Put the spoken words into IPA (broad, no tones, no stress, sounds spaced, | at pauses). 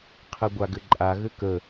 qʰ ɘ ɡʷ a ɡ ɘ ǃʼ a ɣ ɘ k ə